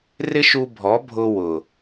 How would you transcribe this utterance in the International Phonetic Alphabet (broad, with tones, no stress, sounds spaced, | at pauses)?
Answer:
r ɪ˦ ʃ u˧ bʱ ɔ˨˦ bʱ ʊ˧ w ʊ˨